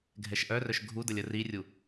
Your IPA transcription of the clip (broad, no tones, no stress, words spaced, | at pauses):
ɡʱɛʃʔœrœʃ ɡʱu dəlʲərirʲu